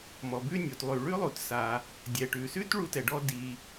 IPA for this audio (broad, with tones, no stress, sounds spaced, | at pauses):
m ɔ˩ b ʉ˥ nʲ o˩ t lˠ ʉ˩ ɭ ʉ˥ lˠ u˩ t s a˩ | dʲ ɛ˩ ʈ ʉ˩ s ʉ˥ t ɭ u˥ t ɛ˩ ɖ ɔ˥ d i˩